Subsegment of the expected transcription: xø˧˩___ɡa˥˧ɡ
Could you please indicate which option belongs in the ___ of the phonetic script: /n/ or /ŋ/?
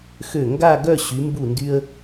ŋ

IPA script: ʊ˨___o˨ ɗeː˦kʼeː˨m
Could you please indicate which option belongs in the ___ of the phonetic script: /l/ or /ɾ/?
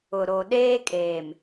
ɾ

